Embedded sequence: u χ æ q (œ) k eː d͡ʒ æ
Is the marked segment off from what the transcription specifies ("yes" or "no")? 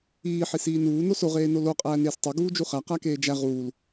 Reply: yes